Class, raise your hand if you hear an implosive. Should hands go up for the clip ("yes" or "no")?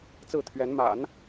no